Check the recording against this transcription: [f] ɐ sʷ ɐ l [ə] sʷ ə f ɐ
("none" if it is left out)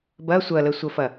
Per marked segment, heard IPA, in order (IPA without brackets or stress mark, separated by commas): b, ə